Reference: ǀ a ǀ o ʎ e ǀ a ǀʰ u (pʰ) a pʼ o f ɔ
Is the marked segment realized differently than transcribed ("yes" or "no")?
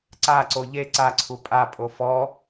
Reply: yes